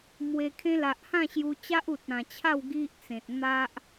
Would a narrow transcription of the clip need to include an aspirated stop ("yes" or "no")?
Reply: yes